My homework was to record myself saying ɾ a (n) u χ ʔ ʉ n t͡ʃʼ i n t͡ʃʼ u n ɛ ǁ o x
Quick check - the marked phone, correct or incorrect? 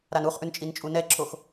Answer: correct